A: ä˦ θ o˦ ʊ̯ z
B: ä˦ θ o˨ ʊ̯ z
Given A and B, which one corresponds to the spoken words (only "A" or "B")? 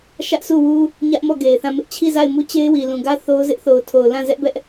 A